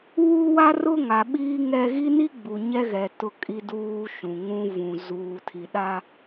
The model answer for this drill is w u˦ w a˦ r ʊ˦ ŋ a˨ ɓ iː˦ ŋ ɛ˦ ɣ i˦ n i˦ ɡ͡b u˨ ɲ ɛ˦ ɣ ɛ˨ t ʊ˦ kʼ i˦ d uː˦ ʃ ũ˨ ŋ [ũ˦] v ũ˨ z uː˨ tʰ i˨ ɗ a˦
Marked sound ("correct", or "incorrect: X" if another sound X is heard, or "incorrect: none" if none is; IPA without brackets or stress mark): correct